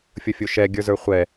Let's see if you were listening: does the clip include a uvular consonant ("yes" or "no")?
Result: yes